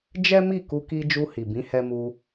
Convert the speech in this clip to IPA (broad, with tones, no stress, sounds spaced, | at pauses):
d͡ʒ ɛ˦ m i˦˨ k u˧ k i˧ d͡ʒ u˧ h i˨ b ĩ˨˦ h ɛ˧ m u˧